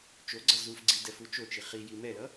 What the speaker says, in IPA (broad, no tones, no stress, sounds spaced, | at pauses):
t͡ʃ o ɡ͡ǀ ʌ z u f ɡ͡ǀ i d ɛ f u t͡ʃ o t͡ʃ i χ i j i m ɛ l ʌ